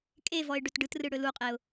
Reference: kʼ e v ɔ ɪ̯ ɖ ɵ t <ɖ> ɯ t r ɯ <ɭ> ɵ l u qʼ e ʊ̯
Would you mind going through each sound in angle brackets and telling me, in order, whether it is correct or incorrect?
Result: correct, incorrect

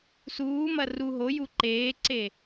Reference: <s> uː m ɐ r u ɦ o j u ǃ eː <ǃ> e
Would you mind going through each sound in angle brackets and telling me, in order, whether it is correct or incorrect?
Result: correct, incorrect

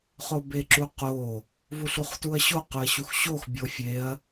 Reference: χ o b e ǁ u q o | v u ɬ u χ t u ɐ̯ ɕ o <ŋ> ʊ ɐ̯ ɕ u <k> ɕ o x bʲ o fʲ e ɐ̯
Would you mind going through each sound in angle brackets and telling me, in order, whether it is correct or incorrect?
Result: incorrect, incorrect

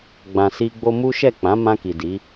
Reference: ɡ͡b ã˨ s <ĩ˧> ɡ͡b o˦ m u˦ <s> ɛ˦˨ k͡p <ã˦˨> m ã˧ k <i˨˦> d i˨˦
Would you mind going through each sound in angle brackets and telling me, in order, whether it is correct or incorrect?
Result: incorrect, incorrect, incorrect, incorrect

